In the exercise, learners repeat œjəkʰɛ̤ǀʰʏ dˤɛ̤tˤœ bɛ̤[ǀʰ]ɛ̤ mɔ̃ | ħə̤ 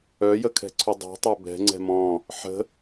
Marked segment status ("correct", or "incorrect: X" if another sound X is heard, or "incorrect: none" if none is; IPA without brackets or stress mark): incorrect: ŋ͡ǀ